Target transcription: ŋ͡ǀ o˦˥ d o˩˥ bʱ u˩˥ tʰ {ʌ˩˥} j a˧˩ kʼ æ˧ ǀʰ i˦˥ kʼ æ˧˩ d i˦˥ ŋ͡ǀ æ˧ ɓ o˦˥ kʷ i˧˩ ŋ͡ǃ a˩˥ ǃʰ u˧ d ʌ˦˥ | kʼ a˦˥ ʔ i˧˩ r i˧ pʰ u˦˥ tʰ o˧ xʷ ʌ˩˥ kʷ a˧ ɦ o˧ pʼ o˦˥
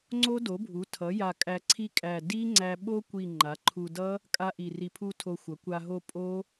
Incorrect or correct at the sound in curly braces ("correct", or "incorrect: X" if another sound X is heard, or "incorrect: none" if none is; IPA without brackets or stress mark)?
correct